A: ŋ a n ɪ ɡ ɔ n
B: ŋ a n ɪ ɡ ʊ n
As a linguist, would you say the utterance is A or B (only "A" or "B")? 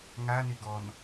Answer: A